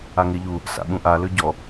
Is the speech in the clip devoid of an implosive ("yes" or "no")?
no